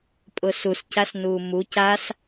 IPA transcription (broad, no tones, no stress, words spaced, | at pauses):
pʼʊsuscas nuːmu cas